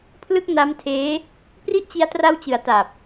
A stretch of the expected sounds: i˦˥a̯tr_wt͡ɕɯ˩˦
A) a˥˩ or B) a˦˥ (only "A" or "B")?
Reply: B